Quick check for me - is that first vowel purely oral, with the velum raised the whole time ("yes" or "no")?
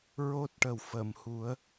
yes